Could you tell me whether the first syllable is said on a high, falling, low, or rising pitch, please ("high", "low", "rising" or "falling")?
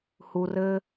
low